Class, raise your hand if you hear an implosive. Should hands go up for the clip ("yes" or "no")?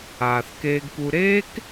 no